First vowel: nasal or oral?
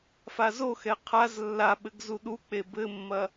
oral